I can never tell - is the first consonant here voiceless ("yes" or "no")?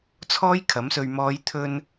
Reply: yes